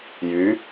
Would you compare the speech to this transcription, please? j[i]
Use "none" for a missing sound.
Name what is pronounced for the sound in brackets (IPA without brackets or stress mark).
y